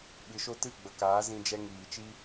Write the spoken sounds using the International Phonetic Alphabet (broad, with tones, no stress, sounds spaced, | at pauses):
ɓ ɨ˨ ʃ o˧ t ɨ˦˨ ɡ͡b ə˨ k aː˨˦ z ĩ˧ d͡ʒ ɛ˧ ŋ iː˨ t͡ʃ i˦